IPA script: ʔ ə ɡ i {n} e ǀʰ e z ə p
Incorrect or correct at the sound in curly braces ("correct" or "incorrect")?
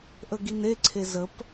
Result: correct